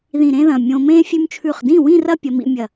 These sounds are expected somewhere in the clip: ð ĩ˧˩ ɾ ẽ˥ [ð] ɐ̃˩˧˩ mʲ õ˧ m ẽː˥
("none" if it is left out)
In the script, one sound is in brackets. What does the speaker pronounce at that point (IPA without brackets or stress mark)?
ð